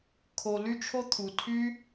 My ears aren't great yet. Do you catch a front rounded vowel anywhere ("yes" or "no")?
yes